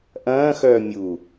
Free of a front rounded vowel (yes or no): no